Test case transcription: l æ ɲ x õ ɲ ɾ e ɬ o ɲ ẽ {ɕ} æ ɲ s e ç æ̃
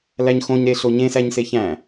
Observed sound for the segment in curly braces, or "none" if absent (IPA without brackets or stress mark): s